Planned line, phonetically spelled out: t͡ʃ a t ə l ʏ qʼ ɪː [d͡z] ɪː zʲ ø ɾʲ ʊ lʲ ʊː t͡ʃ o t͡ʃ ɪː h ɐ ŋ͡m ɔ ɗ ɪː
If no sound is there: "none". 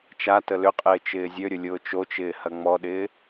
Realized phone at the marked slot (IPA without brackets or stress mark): t͡ʃ